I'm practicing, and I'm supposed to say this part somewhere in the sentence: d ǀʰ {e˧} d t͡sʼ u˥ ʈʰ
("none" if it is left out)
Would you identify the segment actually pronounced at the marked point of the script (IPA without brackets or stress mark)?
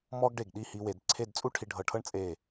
e˥˧